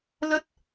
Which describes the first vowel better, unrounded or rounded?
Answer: unrounded